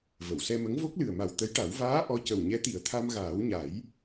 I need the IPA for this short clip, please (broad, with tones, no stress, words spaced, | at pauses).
və˨˩˨wsɛ˧mə˧˥ŋ vo˦˥k̚lɨ˨˩ə̯ma˨˩w t̪ə˧˥jʈa˨˩˦w vaː˧˥ ʔɔ˧˥cə˨˩w ɲɛ˧˥t̪i˨˩˦ə̯t̪ʰa˧mɣaː˨˩˦w ɲa˨˩˦j